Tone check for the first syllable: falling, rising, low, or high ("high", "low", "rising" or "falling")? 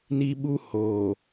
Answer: high